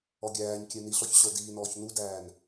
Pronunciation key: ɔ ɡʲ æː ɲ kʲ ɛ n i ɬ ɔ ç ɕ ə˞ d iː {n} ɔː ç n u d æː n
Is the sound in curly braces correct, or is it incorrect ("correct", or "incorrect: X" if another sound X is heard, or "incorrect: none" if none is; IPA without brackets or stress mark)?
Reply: correct